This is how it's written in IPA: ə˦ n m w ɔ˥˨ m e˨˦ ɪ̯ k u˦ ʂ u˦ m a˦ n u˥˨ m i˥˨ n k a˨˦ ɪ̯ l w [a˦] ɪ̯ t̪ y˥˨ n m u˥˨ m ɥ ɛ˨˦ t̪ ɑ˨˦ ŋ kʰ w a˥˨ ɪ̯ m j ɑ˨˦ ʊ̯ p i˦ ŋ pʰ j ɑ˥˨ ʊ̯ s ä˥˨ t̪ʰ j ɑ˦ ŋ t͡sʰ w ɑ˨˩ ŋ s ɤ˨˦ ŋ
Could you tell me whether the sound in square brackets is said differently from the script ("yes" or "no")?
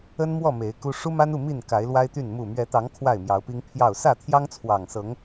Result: no